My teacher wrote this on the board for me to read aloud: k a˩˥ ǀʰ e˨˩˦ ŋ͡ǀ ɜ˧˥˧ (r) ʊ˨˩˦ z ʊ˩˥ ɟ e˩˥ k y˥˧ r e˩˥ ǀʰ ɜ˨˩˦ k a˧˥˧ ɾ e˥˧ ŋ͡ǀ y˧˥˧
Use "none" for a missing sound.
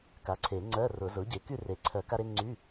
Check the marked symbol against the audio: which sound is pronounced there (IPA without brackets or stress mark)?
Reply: r